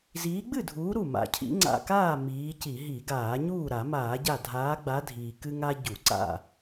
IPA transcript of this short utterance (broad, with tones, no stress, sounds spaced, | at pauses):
z iː˨˦ ɡ͡b ɨ˥˨ dʱ uː˨˦ ɾ u˧˩ m a̰˩ cʰ ḭ˨˦ ŋ͡ǀ a̰˧˩ k aː˥˨ m iː˨˦ c i˧˩˧ ɦ i˧˩˧ ɡ aː˧˩˧ ɲ uː˥˨ ɾ a˧˩˧ m aː˧˩˧ ɟ a˧˩ dʱ aː˨˦ ɡ͡b a˨˦ dʱ iː˩ k ɨ˦ ŋ a˦ ɟ u˧˩˧ ǀ a̰˥˨